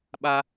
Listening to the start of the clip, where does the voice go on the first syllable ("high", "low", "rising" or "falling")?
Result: low